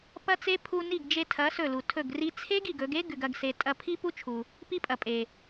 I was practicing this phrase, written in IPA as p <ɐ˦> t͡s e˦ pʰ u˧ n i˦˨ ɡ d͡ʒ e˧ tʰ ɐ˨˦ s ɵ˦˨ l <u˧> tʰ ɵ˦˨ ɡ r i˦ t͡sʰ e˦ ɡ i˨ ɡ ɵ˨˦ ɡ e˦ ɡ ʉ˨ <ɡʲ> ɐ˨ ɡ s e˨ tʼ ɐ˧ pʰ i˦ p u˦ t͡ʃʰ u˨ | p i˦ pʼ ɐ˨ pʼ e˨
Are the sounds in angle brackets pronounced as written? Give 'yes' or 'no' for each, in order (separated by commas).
yes, no, no